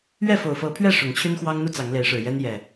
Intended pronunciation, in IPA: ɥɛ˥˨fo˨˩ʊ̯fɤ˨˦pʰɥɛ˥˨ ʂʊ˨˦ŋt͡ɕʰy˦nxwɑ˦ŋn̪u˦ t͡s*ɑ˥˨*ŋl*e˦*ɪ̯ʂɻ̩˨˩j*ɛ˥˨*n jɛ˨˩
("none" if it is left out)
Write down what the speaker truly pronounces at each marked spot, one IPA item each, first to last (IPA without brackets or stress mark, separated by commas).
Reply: ɑ˨˦, e˨˦, ɛ˦